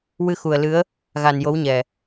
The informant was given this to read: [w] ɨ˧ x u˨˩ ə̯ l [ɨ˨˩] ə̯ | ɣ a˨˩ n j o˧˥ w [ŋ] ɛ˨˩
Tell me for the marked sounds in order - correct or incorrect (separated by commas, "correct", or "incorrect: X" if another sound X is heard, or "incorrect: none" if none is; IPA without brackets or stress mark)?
correct, incorrect: ɨ˧˥, incorrect: ɲ